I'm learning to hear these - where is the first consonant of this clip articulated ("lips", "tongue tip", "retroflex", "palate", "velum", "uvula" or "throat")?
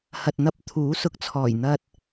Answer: throat